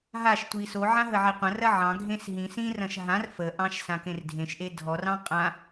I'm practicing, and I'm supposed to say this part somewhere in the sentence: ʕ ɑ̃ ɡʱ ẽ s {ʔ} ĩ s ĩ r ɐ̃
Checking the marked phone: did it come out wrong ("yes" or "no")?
yes